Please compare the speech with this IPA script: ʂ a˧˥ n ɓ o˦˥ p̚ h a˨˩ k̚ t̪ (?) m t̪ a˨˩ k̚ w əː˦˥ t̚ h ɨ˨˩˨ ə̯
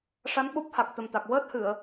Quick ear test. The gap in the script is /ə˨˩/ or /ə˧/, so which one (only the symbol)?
ə˨˩